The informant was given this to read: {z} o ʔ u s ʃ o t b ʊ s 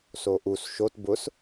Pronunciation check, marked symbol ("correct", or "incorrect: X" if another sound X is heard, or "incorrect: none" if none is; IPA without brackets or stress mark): incorrect: s